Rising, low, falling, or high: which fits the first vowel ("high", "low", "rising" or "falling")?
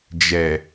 low